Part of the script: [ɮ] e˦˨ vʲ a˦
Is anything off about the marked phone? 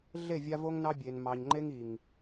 no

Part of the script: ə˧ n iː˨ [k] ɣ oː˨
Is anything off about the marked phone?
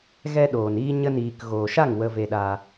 no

